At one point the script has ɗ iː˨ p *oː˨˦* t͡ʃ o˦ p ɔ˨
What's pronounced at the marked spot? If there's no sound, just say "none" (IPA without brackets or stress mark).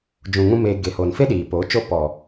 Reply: oː˨˦